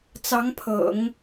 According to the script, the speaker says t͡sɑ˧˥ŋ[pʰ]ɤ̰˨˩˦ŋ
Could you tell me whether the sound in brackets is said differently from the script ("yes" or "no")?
no